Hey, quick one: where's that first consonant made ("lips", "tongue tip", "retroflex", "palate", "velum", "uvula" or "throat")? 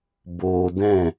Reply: lips